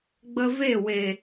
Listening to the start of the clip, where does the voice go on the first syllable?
high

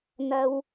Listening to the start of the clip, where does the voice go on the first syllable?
high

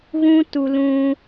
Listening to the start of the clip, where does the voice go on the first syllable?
high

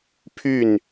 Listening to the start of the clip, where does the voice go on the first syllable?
falling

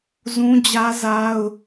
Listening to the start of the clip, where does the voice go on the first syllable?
high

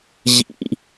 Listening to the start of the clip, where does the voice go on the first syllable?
high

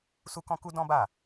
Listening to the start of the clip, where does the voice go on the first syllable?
high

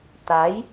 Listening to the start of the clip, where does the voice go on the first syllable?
rising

